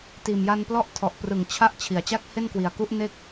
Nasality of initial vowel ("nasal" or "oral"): oral